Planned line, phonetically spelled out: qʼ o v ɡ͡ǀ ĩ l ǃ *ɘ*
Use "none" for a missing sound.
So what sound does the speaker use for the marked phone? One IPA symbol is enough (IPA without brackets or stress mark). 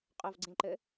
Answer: ɘ